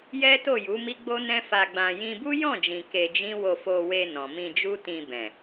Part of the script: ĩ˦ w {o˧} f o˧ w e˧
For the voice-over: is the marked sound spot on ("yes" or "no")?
yes